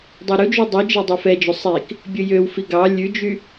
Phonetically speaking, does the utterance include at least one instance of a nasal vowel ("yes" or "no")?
no